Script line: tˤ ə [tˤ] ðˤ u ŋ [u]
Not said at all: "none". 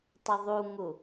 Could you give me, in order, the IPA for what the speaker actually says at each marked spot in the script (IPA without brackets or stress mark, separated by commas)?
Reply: none, u